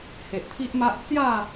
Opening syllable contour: low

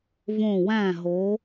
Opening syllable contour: falling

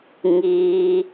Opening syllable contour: low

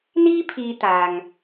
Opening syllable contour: high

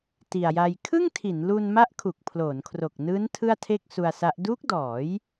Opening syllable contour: low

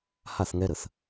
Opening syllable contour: falling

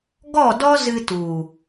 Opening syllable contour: falling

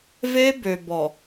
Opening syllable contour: high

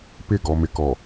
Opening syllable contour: falling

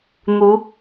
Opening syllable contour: rising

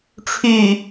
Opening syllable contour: low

